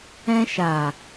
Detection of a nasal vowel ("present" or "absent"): present